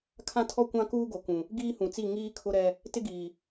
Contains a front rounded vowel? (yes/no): no